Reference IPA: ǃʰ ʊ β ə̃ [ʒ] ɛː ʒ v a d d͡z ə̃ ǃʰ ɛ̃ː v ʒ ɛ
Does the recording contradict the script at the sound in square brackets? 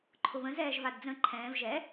yes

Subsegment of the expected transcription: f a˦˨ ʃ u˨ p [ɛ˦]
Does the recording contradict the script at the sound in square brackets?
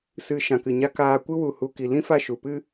yes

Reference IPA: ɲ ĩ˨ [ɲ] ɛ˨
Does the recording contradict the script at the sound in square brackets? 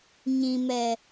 yes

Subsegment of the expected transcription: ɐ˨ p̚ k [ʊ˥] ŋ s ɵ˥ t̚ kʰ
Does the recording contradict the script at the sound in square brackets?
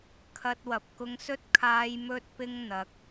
yes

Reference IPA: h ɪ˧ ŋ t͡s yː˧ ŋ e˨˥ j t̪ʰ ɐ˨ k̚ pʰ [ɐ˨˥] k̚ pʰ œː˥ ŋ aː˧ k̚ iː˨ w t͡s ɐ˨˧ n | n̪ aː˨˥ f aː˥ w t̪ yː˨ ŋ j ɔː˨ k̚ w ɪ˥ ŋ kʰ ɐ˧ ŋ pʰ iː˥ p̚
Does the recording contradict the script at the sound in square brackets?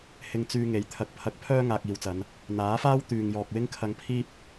no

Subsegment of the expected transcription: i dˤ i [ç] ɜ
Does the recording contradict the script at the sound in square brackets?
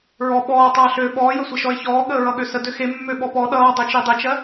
yes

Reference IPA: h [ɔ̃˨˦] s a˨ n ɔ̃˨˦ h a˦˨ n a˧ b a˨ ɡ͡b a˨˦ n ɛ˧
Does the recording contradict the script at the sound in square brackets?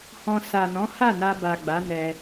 yes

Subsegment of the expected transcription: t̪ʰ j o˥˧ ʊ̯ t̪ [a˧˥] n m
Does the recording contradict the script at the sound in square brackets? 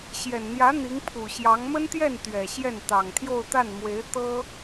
yes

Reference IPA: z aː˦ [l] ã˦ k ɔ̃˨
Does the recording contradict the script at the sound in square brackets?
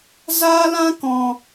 no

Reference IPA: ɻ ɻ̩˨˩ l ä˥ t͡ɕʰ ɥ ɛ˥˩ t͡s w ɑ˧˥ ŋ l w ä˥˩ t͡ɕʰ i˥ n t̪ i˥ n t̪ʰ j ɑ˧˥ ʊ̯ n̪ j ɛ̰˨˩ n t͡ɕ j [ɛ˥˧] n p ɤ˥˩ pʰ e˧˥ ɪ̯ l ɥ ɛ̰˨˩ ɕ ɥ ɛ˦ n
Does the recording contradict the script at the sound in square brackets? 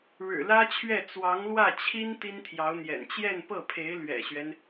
no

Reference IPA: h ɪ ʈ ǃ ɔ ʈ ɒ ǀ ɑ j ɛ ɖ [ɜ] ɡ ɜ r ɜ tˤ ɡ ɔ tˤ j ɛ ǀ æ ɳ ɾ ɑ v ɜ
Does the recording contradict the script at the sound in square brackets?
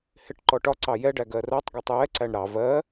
yes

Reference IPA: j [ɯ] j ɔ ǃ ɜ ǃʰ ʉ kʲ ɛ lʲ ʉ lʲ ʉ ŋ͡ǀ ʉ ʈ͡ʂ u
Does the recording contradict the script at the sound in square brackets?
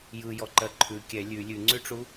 no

